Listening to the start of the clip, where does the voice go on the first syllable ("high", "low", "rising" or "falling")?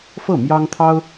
falling